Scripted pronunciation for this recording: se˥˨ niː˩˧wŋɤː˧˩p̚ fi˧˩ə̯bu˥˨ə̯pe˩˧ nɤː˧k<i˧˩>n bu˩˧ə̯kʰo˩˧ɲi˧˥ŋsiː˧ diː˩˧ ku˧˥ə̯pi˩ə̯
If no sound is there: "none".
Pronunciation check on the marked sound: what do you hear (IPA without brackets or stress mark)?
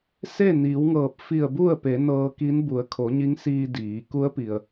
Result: i˧˥